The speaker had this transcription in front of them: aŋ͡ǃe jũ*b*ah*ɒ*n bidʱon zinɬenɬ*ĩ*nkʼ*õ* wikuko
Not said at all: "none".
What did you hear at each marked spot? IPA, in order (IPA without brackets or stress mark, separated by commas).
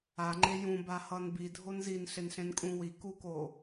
b, ʌ, ẽ, ũ